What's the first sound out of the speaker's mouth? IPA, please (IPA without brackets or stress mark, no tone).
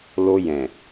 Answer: l